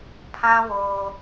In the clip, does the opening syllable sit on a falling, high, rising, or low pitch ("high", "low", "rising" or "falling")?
high